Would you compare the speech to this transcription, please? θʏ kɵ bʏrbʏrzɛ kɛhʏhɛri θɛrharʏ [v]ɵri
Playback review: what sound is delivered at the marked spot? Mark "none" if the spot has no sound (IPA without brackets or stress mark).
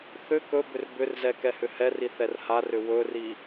w